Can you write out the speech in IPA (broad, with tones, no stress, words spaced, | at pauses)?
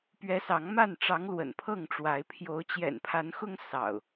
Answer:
pɥɛ˨˦ sɑ˨˦ŋma˥˨n ʈ͡ʂɑ˨˦ŋ lwə̰˨˩npʰɤ˥˨ŋʈ͡ʂwa˨˦ɪ̯ pʰjo˨˦ʊ̯t͡ɕjɛ̰˨˩npʰa˨˦nxʊ˦ŋ sɑ̰˨˩ʊ̯